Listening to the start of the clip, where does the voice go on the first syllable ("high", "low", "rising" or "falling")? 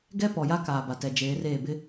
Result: high